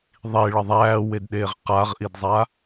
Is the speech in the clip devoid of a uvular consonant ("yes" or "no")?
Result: no